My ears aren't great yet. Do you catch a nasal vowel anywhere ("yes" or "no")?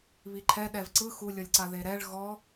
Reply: no